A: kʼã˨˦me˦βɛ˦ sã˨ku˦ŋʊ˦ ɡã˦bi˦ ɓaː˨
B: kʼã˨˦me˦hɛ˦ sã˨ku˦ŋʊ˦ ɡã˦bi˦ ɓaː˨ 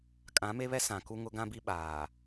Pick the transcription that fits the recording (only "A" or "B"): A